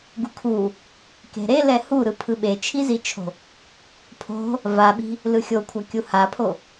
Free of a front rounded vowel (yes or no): yes